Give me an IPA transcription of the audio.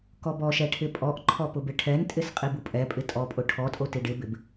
kɔbɔʃɛ ʈʰɪpʼɔʔǃʰɔ pʊbɪʈʰɛntʼɪs qʼibupʼɛpʼɪ tʼɔpʼʊ ʈʰɔtʼo tiɖɪbɪb

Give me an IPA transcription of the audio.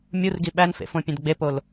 mʲurɡi ɓænfḛfõpʲẽd ɡ͡bepol

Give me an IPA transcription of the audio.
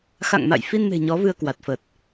xa̰˧˨ŋma̰˧˨j fi˧nme̤˨˩ ɲɔ˨˦vɨ˧ə̯kwa˨˩t̚fəː˨˩t̚

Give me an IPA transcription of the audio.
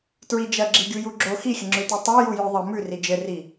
tɹid͡ʒɐ ɡ͡ǁiɡʲujuɡ͡ǁo xixʲəŋ͡ǁʉti tˤo jujʉðˤɘ mʉri d͡ʒɘri

